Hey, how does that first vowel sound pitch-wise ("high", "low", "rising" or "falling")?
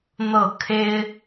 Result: falling